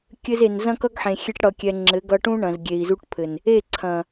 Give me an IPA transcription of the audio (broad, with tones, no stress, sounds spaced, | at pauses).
kʲ ɘ˧ z e˨ n z ɐ̃˦ k ʌ˦ ɡ ħ ẽ˨ xʲ e˦ ʈ ɽ ʌ˧ kʲ ɛ˧ ŋ͡ǁ ɘ˨˦ ɡ ʌ˧ ʈ ũ˦ ɳ ɐ̃˨ z ɡʲ e˨ i̯ z u˧ ʈ pʰ ɘ˨ n | e˦˨ ǀʰ ɐ̃˨